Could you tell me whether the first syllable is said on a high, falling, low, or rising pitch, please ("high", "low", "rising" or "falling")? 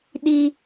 high